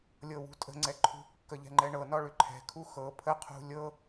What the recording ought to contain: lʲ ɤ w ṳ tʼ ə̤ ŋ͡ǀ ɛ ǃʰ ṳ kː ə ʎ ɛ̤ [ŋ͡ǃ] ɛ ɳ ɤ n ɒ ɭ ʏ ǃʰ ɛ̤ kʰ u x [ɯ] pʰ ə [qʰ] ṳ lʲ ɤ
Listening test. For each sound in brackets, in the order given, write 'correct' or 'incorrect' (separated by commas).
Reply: correct, incorrect, correct